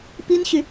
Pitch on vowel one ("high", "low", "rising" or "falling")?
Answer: high